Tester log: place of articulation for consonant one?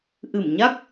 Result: glottal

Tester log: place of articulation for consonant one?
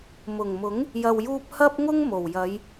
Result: labial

